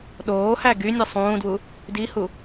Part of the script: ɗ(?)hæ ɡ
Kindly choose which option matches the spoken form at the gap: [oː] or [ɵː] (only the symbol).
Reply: oː